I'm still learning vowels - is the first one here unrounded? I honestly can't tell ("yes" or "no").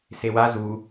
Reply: yes